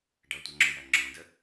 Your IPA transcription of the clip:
ɖ ʌ tʷ ʌ ŋ͡ǁ o j æ ŋ͡ǁ õ d ə

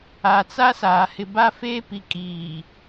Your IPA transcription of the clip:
a˨ t͡s a˦ s aː˨ h ɪ˨ b a˦ f eː˦ p i˨ kʼ iː˨

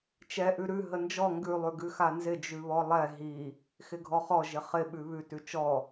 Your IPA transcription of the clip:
t͡ʃ ɛ ʔ ʉ ɾ ʉ ɦ ə n d͡ʒ ɔ ŋ ɡ ʉ lˠ ʉ ɡ ʉ x a n z ɪ d͡ʒ ʉ β ɔ lˠ ɛ ɦ i | x ɪ ɡʱ ɔ χ ɔ ʒ ɪ χ ɪ ɓ ʉ β ʉ t ʉ t͡ʃ ɔ

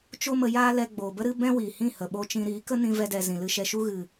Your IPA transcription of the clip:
t͡ʃ o˦ m ə˧ j aː˦ l ɛ˧ ɡ͡b oː˨ b ə˦ ɾ ɨ˦ b ɛ̃˦ w iː˨ h ĩ˦˨ h ə˨ ɓ o˧ t͡ʃ ĩ˧ ɾ iː˨˦ k ə˦ n ĩ˧ v ɛ˧ d ɛ˨ z ĩ˨ l ɨ˧ ʃ ɛ˧ ʃ u˦ ɣ ɨ˨

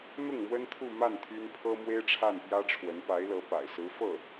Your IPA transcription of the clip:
n̪ ʊ˥˩ ŋ m w ə˥ n t̪ʰ u˥˧ m a˥˩ n t̪ʰ y˥ n pʰ ɤ˥ m w e˥ ɪ̯ ʈ͡ʂʰ a˥˩ n p j ä˥ ʈ͡ʂʰ w ə˧˥ n p a˧˥ ɪ̯ l ɤ˧˥ p a̰˨˩ ɪ̯ s ɹ̩˧˥ f ɤ˥˩

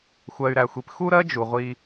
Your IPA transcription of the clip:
xʷ ɜ˨ y̯ ɾ æ˨ xʷ i˨ p x u˦ ɾ ɜ˦ d͡ʒ u˨ ʁʷ i˦

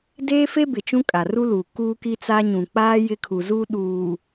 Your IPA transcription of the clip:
d eː˦ f e˦ b ɪ˨ t͡ʃ ũ˦ kʼ a˨ r u˦ l uː˨ k uː˦ k i˦ t͡s a˦ ɲ ũ˨ k͡p aː˦ j ɪ˦ kʰ u˨ z uː˦ ɗ uː˨

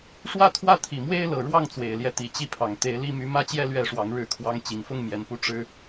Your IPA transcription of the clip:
ʂ w ä˥˨ t̪ʰ w ä˦ t̪ʰ i˨˩ m w e˦ ɪ̯ l ɤ˨˩ ɻ w ɑ˥˨ ŋ t͡s w e˨˩ ɪ̯ l j ɛ˦ t̪ i˨˩ t͡ɕ i˥˨ pʰ ɑ˨˩ ŋ t̪ e˨˦ ɪ̯ l i˦ m y˨˦ m ä˥˨ t͡ɕ j ɛ˥˨ l ɥ ɛ˥˨ ʂ w ɑ˨˦ ŋ ɻ ɻ̩˥˨ kʰ w ɑ˦ ŋ t͡ɕ i˨˩ ŋ f ʊ˥˨ ŋ m j ɛ˨˩ n p u˦ ʈ͡ʂ ɻ̩˦

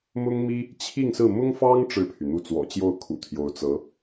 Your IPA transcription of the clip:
m ʊ˥ ŋ m i˥ | t͡ɕʰ i˥˧ ŋ s ɹ̩˥˩ m ʊ˥ ŋ f ɑ˥ ŋ ʈ͡ʂ ɻ̩˥˩ pʰ y˩ n̪ u˥˩ t͡s w ɔ̰˨˩ t͡ɕ j o˥˩ ʊ̯ kʰ ṵ˨˩ t̪ʰ j o˧˥ ʊ̯ t͡s ɤ˧˥

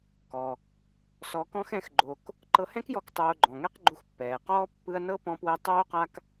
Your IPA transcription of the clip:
k ɔ˩ | s ɔ˧ k ɔ̃˥ x ɛ̃˥ x ɡ͡ǃ o˧ k | ǃ ɤ˧ h ɛ̃˥ k j ɔ˧ k tˤ oː˧ ɡ͡ǃ ɔ̃˩ ŋ ɛ˥ q ɡ͡ǃ u˧ x pː ɛː˩ q ɔː˥ pː ɯ˥ ɐ̯ n ɤ˥ p ɔ̃˥ p w ɛ˥ tˤ oː˥ q a˥ k

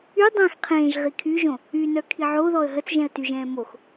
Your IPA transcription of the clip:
y dˤ ɛ̃ x qʰ ẽː ʒ ʁ i kʰ y ʒ õ | y n œ kʰ i ʕ o ð ɔ ə̯ ɦ ə t͡s ʒ ɛ̃ ə̯ t y ʒ ɛ̃ː m o x

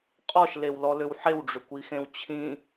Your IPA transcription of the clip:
qʼ ɔ ʃ l e w l ɔ l ʏ w ħ e w ɖ͡ʐ ʏ kʷ i x ẽ w t͡ɕʰ ĩ

